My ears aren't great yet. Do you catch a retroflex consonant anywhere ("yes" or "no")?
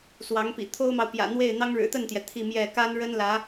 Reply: yes